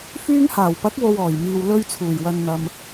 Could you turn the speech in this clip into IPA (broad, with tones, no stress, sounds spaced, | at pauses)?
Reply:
f yː˧ ŋ h aː˨˩ w p ɐ˨˥ k̚ w o˧ w ɔː˨˩ j m iː˨ w l ɵ˧ ɥ t͡sʰ uː˨˩ j w ɐ˨ n n̪ ɐ˨ m